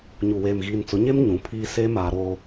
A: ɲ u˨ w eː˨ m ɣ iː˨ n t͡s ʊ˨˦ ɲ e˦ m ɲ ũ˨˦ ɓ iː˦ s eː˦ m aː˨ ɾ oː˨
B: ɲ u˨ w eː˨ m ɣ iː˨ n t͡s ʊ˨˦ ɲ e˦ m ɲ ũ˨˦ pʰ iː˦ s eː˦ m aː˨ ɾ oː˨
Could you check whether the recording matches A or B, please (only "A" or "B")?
B